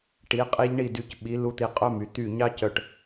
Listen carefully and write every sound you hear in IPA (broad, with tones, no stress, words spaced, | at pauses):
ʈi˩˧qʼi˧ʎ ɳi˧˩dy˩˧c ɓi˩˧lu˧ t̪i˧qʼœ˥my˩˧ t̪y˧˩ ɲɑ˥cœ˧˩ʈ